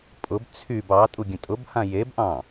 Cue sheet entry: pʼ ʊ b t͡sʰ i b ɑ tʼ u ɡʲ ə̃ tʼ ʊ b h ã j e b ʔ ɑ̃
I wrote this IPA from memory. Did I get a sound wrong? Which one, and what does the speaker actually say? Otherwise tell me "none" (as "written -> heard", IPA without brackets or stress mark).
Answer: i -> y